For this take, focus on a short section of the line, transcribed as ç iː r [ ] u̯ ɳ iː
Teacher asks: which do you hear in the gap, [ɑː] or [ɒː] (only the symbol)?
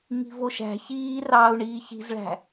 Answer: ɑː